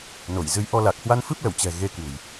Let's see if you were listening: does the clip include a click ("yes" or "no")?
no